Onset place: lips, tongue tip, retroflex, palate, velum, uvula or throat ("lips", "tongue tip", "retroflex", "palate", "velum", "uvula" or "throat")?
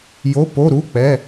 palate